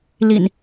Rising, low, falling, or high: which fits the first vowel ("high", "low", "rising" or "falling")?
low